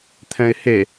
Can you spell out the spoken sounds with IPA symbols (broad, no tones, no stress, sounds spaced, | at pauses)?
t̪ʰ ɛ̃ ɪ̯ h e